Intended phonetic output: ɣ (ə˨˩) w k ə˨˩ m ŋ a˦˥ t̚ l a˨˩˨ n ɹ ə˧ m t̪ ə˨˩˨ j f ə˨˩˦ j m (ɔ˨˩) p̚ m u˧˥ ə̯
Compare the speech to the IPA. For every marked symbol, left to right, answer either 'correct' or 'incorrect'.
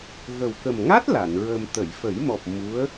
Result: correct, correct

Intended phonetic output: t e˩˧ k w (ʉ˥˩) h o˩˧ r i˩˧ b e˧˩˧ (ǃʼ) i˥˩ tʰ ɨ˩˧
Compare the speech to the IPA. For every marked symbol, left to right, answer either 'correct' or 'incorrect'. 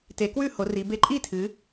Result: correct, correct

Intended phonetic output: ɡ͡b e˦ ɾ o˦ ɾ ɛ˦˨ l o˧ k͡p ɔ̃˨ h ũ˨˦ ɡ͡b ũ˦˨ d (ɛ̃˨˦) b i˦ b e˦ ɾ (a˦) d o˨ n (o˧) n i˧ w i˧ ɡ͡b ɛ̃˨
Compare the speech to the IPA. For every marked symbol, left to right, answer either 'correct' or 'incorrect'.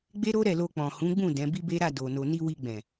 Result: correct, incorrect: a˦˨, incorrect: o˨

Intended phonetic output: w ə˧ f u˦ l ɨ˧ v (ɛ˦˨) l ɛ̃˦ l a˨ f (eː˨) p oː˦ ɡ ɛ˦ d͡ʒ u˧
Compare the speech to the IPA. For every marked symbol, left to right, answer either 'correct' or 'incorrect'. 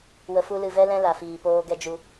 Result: incorrect: ɛ˦, incorrect: iː˨

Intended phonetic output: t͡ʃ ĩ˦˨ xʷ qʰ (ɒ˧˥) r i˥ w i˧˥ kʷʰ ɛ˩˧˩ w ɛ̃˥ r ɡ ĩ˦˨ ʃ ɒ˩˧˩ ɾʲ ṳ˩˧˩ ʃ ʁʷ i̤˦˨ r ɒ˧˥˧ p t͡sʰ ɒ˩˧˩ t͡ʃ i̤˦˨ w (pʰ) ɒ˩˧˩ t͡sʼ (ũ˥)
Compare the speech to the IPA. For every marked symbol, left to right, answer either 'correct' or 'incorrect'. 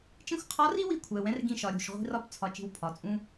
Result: correct, correct, correct

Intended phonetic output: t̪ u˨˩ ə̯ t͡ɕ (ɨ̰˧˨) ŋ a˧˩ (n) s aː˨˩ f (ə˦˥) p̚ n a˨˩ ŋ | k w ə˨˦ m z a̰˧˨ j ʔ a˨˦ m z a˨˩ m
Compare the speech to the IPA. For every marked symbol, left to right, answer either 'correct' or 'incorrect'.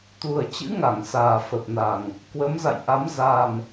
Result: incorrect: ɨ̰˧˥, incorrect: ŋ, incorrect: ə˨˩

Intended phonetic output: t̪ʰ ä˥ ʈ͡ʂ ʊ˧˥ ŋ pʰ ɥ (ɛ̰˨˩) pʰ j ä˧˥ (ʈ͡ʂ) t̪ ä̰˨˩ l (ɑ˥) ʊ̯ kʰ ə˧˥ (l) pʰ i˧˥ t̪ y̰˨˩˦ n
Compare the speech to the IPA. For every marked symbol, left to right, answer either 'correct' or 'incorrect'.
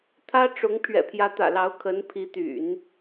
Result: correct, incorrect: none, incorrect: ɑ˧˥, incorrect: n

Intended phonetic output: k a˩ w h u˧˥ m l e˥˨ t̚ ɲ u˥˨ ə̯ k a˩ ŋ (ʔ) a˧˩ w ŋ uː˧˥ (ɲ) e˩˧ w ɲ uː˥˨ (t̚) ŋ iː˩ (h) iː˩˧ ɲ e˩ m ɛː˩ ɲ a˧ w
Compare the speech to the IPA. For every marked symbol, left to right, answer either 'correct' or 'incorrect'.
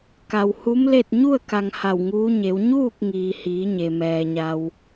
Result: incorrect: h, correct, incorrect: k̚, correct

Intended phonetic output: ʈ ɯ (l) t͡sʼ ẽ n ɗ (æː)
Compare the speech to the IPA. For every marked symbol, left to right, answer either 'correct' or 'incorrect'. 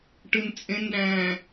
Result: incorrect: n, incorrect: æ̃ː

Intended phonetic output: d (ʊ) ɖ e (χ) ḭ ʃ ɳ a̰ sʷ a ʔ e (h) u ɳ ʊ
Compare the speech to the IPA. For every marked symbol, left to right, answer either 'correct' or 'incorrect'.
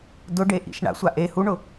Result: correct, incorrect: ʔ, correct

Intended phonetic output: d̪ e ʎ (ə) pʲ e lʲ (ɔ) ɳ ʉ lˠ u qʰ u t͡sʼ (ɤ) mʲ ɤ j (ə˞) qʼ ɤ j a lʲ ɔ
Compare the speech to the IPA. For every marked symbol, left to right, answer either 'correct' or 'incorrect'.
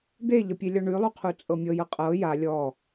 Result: correct, correct, correct, incorrect: ɤ

